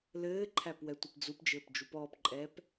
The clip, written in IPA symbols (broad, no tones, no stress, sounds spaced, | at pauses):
l ɘː ǃʰ æ p w ɛ tʷ ɘ p d͡z u p d͡ʒ ɘː p d͡ʒ u p ɔː p ǃʼ ɛː p